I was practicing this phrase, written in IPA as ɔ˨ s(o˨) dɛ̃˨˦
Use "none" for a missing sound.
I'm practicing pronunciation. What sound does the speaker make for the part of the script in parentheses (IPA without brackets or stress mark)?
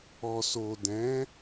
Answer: o˨